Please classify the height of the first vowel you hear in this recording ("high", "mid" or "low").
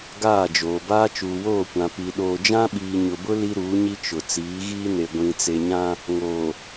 low